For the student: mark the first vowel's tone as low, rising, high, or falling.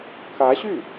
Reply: rising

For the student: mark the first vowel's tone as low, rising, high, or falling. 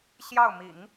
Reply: falling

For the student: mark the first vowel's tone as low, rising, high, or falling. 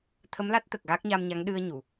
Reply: rising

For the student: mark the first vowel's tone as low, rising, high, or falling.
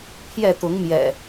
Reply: falling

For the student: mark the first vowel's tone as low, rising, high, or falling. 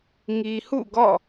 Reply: low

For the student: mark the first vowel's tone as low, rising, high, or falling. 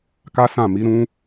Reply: high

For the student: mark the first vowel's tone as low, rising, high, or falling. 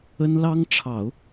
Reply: high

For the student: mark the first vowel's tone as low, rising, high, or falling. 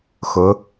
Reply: rising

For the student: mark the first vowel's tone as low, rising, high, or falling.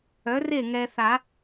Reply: rising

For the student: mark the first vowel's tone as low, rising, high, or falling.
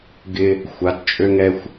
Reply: high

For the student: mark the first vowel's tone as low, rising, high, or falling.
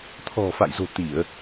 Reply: low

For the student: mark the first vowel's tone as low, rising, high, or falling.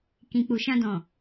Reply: low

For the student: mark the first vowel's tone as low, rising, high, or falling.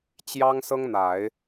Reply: high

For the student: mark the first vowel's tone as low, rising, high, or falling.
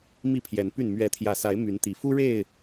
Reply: falling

